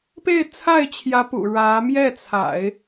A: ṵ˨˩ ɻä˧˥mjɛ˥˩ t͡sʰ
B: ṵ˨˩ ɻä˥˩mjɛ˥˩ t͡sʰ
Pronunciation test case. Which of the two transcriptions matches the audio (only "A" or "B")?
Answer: A